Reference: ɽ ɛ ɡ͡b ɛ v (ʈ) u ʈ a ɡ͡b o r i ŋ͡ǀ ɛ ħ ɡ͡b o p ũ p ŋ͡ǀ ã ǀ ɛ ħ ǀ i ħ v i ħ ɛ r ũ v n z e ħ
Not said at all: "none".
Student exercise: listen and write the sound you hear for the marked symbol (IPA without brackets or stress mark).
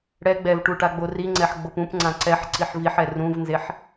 ʈ